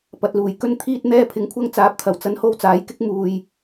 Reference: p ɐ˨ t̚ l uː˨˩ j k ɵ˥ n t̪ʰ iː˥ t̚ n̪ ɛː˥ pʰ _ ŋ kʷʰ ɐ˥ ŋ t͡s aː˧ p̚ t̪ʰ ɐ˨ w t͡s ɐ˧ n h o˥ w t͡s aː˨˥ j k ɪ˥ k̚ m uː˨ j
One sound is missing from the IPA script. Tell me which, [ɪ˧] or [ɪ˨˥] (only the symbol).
ɪ˧